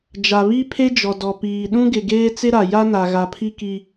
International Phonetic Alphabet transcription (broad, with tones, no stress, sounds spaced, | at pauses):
d͡ʒ a˨ β i˦ pʰ e˦ d͡ʒ ɔ˨ d ɔ˨ p iː˨ ɗ ũ˦ ɡ ɪ˨ ɡ eː˦ t͡s ɪ˦ ɾ a˨ j a˦ n a˨ ɣ a˨ pʰ i˦ k i˦